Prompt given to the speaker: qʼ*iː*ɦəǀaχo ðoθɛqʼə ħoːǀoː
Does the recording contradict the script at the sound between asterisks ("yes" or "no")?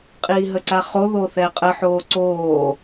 no